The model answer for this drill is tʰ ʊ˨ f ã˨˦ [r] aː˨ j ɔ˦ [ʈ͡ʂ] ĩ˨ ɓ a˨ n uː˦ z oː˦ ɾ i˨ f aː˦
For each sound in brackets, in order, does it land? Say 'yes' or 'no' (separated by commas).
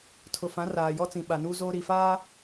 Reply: yes, no